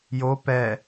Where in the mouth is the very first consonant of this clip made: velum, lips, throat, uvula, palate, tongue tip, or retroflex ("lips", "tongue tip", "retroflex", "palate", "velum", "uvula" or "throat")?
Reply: palate